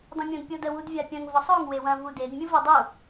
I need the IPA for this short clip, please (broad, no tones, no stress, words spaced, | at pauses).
dˤɐ̃mʲõdpʲodə wudvʲapʲɐ̃ŋ vəsˤoŋ wewɐ̃ vuded mʲɯvɯdˤu